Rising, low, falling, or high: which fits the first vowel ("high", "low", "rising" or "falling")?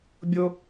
high